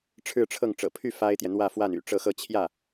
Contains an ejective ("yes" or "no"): no